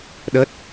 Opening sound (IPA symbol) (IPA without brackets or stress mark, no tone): ɗ